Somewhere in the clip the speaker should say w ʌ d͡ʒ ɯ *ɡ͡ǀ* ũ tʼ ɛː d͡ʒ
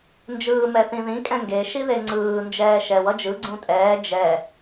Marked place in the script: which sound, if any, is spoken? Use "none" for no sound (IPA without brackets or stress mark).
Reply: ɡ͡ǀ